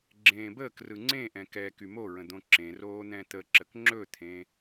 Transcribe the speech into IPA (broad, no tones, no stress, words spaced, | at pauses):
ɡ͡ǁẽːbəːkrɯ ŋ͡ǀẽʔɛ̃ kɛ kymoɹə̃ d̪õǁẽroː n̪ɛ̃t̪əǁək ŋ͡ǁɵt̪ʰẽ